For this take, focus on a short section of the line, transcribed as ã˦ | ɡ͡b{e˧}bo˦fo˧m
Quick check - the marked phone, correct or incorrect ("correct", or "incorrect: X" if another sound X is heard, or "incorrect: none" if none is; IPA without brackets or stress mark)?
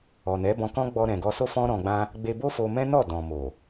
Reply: correct